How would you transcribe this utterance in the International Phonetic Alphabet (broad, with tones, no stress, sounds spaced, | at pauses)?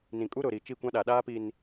n ĩ˨ kʼ u˦ ɾ ʊ˨ ɾ i˨ t͡ʃ i˦˨ kʷ ã˦ ɗ a˨ ɗ aː˦ p i˨ n